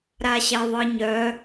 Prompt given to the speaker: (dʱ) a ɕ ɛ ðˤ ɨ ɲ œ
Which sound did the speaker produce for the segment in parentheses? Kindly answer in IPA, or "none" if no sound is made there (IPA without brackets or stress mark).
ɾ